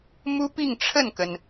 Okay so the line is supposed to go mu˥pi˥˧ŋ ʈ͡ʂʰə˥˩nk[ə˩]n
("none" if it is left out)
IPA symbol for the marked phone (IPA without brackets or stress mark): ə˩